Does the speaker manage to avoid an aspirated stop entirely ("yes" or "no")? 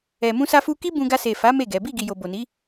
yes